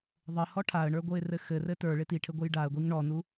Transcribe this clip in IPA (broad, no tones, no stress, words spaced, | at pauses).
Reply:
ðˤɘhɔ ʈʰaə̯ɳə˞ɡʷɤɪ̯rɘ xɘrɘ tə˞ɭɪ tiʈʰɘɡʷɘj ɖaə̯ɡʷiŋ ɳɔnu